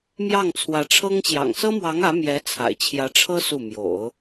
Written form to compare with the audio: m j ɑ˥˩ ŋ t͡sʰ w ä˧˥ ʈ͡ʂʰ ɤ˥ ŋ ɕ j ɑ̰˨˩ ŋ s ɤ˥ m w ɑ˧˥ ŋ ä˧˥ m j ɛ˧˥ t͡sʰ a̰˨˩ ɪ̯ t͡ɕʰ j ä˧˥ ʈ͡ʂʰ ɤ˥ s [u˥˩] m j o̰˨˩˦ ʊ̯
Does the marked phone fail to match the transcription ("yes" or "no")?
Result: no